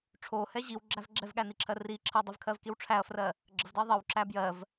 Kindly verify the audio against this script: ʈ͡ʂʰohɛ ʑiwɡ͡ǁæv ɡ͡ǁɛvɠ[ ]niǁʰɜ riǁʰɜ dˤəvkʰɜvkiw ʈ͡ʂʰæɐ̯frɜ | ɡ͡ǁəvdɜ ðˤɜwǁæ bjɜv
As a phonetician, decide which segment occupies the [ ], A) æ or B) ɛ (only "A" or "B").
A